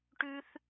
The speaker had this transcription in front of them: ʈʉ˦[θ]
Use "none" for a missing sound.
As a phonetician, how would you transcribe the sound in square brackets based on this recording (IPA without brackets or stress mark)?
θ